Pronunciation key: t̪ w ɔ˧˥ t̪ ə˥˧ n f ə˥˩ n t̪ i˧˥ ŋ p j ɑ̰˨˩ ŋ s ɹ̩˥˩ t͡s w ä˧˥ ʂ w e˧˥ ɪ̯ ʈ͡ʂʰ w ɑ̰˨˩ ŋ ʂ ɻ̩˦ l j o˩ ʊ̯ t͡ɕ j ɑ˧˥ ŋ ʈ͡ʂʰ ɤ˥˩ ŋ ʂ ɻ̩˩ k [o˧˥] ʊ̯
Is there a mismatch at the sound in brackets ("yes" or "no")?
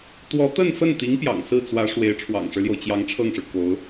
no